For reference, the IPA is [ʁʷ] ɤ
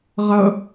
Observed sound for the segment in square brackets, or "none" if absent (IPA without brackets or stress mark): ʁ